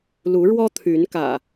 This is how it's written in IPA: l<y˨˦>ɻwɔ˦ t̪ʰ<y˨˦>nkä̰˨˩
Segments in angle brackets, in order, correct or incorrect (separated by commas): incorrect, correct